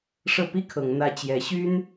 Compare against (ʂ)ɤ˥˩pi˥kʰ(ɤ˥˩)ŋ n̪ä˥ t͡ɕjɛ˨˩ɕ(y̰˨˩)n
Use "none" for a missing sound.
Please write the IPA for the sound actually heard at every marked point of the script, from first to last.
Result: ʂ, ɤ˨˩, y˥

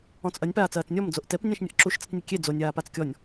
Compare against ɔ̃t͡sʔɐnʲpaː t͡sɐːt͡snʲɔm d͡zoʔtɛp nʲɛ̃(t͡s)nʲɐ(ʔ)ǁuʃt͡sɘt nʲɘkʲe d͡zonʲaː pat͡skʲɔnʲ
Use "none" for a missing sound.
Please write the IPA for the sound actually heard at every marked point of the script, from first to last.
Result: ʃ, ʔ

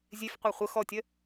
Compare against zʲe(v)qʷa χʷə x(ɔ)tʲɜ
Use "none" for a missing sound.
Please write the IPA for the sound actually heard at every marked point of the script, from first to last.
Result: f, ɔ

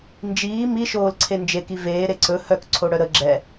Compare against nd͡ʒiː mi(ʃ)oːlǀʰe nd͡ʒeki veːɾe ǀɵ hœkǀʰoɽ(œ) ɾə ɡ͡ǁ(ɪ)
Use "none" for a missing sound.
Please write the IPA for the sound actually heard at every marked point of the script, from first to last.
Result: ʃ, œ, ɛ

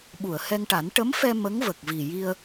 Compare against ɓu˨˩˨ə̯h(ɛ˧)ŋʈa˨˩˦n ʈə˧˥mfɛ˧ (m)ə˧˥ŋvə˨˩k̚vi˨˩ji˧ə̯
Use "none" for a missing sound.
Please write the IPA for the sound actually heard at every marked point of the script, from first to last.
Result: ɛ˧, m

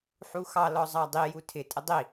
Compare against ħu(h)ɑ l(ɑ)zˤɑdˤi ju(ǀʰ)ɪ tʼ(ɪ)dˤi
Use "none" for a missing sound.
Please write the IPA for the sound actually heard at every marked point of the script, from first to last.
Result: x, ɔ, tʰ, ə

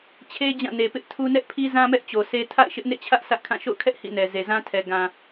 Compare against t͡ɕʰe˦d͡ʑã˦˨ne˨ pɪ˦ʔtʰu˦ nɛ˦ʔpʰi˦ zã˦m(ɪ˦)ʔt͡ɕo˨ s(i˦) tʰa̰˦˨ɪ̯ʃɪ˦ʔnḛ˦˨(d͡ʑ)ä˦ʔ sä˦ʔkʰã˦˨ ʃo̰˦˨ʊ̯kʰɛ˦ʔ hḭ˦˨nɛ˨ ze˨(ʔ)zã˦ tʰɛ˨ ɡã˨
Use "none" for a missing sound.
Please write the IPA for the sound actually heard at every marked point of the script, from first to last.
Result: ɛ˦, e˦, t͡ɕʰ, none

